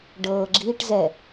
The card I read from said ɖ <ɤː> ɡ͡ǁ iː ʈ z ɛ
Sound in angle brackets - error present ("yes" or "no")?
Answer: no